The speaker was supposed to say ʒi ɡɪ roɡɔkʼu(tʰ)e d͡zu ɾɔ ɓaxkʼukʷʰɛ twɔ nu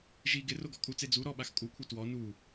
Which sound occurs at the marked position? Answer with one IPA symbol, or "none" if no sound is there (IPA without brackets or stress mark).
t͡s